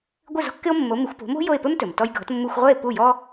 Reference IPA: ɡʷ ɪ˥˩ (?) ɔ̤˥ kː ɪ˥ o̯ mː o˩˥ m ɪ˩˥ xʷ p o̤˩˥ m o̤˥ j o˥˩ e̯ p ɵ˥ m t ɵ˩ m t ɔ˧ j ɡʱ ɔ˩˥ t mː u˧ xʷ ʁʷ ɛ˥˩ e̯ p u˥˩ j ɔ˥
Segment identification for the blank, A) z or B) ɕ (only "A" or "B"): A